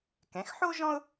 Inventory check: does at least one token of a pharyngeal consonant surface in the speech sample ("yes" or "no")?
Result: yes